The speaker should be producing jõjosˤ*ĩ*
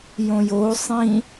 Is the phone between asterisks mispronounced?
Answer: no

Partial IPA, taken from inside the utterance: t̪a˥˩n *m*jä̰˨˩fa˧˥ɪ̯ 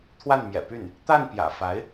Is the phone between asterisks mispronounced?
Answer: yes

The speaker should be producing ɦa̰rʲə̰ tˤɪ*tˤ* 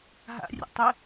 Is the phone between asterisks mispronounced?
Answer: yes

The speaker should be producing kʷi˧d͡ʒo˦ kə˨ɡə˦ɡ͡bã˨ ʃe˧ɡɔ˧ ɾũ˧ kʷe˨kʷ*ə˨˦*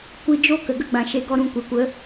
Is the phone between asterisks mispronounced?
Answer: no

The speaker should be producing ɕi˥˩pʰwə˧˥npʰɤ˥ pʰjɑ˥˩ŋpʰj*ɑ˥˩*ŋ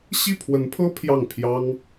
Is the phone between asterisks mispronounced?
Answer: yes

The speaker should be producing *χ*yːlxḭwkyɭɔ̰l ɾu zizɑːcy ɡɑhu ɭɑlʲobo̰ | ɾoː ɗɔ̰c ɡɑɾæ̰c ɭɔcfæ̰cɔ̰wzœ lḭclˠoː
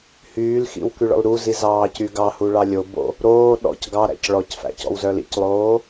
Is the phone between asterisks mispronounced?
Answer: yes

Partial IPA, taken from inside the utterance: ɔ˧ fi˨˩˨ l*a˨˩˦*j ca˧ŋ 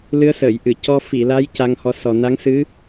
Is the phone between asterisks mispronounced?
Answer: yes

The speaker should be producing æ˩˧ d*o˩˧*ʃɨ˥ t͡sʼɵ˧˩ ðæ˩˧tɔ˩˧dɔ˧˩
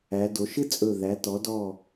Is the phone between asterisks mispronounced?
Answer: no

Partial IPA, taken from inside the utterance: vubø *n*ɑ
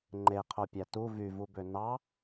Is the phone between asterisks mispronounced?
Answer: no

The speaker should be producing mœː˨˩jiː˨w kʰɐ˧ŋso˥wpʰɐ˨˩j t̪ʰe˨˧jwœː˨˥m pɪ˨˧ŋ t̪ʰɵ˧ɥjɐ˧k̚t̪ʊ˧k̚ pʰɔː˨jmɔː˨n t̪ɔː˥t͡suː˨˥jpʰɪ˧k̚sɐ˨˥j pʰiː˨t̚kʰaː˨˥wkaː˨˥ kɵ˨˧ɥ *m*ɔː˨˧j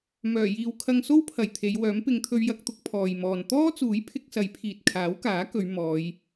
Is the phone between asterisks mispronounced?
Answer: no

